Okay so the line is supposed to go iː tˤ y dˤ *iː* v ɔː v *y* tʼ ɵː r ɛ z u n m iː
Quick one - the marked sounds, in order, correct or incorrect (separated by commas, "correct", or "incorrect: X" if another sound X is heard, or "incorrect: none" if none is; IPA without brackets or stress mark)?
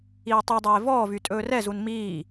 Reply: incorrect: eː, correct